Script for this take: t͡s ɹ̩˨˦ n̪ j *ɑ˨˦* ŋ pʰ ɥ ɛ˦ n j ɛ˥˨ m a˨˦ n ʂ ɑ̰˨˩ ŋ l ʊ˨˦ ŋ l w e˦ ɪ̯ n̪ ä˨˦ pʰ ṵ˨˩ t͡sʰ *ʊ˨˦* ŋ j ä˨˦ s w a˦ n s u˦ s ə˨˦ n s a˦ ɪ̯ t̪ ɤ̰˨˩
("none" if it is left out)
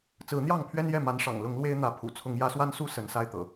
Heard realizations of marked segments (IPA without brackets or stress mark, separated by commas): ɑ˥˨, ʊ˨˦